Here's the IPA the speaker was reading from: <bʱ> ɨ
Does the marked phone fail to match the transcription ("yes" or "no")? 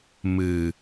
yes